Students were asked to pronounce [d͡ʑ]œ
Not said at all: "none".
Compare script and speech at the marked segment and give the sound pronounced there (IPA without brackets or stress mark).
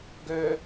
ɡ